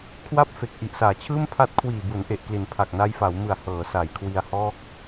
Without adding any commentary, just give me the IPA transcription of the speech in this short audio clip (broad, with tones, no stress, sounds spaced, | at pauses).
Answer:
kʰ w a˥˩ p̚ f e˨˩ k̚ ʔ i˨˩ ʔ s aː˩˦ t͡ɕʰ ɯː˥˩ m pʰ a˦˥ t̚ kʰ w iː˨˩ b u˩˦ n ʔ e˨˩ ʔ k l i˩˦ n pʰ a˨˩ k̚ n a˧ j f a˩˦ w m ɯ˨˩ a̯ h ɤː˩˦ s a˩˦ j kʰ w i˧ a̯ h ɔː˥˩ k̚